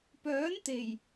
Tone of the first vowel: rising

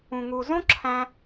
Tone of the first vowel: low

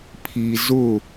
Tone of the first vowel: low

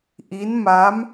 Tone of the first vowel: rising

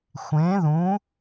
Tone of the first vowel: rising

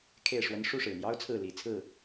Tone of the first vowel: falling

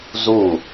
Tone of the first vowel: falling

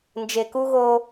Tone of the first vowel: low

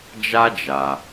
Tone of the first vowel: high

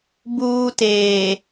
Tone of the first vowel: high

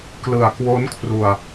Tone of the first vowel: low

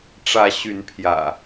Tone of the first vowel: rising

